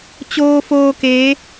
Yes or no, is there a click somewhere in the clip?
no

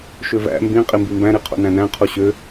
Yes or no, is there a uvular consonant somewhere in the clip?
yes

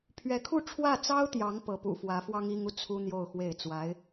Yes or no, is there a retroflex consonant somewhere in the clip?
yes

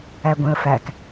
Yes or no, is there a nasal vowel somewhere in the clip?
yes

